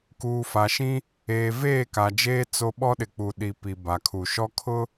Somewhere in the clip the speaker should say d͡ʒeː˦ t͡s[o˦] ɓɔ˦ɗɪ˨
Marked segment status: correct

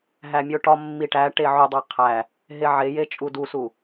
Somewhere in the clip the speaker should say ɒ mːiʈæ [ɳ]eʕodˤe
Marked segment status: incorrect: ʈ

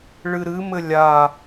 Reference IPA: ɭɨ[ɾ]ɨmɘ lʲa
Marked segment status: correct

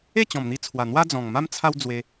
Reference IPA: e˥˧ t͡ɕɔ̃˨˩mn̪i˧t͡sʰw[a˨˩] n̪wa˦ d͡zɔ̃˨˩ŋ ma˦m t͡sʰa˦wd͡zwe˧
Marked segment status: correct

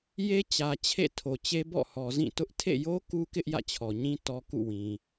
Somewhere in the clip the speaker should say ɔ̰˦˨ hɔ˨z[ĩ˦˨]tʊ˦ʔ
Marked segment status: correct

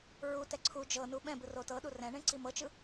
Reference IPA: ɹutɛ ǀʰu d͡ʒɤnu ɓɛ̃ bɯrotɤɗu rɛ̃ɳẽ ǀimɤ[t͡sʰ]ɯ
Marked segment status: incorrect: t͡ʃ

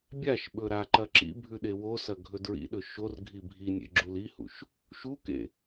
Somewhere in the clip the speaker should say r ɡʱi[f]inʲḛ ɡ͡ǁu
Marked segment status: incorrect: bʱ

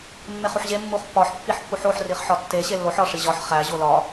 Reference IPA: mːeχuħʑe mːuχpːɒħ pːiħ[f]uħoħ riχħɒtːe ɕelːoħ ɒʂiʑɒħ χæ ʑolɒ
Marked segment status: incorrect: pː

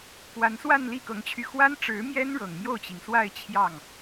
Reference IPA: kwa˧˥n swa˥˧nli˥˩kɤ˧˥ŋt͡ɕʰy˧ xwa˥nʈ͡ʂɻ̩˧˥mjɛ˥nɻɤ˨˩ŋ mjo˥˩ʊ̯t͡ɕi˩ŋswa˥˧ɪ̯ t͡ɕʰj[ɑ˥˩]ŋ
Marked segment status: correct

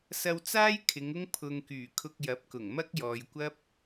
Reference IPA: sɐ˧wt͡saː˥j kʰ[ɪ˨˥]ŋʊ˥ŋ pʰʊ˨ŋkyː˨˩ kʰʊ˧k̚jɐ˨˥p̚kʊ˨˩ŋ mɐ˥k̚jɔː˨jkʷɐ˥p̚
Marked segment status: incorrect: ɪ˨˧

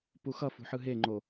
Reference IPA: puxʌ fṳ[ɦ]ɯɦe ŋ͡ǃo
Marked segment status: incorrect: ħ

